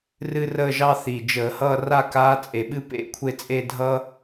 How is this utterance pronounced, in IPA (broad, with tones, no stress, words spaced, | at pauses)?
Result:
rɨ˥rəː˥˧ʒɑ˥ θi˨˩d͡ʒəː˧˩˧hʌː˥˧ ra˥˧kaː˧˥t͡sʼe˨˩ɓɨ˥˧ pḛ˧˥ kʷʰe˥˧t͡sʼe˥˧dʱʌː˥